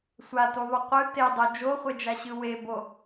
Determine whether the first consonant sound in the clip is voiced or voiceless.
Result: voiceless